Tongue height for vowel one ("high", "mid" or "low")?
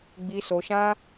high